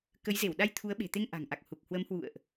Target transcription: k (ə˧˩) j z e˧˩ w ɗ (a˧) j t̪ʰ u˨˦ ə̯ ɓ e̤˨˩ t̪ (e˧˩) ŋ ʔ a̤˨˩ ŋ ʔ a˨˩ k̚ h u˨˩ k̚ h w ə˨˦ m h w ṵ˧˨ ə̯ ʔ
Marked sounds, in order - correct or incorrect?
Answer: incorrect: ə˨˦, correct, incorrect: e˧

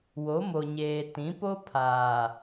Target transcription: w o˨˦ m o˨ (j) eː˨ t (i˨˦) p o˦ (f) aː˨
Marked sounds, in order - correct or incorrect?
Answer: incorrect: ɲ, incorrect: ĩ˨˦, incorrect: pʰ

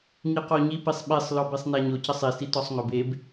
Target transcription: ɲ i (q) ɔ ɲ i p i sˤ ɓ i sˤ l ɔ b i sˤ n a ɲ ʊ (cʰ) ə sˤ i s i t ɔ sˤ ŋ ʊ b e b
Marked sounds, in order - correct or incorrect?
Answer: correct, incorrect: c

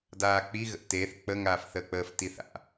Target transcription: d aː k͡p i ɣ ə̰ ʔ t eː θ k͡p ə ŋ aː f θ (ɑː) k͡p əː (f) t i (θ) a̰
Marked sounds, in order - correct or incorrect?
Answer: incorrect: əː, correct, correct

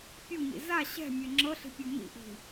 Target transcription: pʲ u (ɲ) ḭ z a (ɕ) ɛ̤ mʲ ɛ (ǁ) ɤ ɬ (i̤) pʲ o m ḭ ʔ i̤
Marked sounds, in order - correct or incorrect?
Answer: correct, correct, incorrect: ŋ͡ǁ, correct

